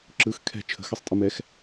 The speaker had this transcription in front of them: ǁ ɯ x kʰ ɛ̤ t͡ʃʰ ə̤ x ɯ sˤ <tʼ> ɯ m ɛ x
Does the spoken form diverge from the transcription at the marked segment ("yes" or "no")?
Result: no